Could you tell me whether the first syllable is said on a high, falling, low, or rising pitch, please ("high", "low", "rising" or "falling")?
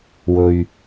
low